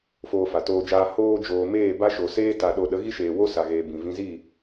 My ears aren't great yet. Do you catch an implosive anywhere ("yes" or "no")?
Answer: yes